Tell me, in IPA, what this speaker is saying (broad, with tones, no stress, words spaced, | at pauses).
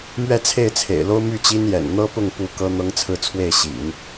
mɥɛ˥˧t͡sʰe˥˩ɪ̯t͡sʰḛ˨˩ɪ̯lo˥ʊ̯ my˥˩t͡ɕi˥njɛ̰˨˩n n̪ɤ˥pʊ˥˩ŋpu˧˥ kɤ˥n̪ɤ˥ŋt͡sʰɹ̩˥˧t͡sʰwe˥˩ɪ̯ ɕḭ˨˩˦ŋ